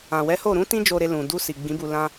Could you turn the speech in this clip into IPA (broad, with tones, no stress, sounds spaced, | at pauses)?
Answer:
ã˨ w ɛ˨˦ h o˦˨ ɾ ũ˨˦ t ĩ˧ d͡ʒ o˨ ɾ e˨ l ũ˨ d u˧ s i˨ ɡ͡b ĩ˨˦ b u˧ l ã˦